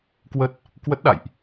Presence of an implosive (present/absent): present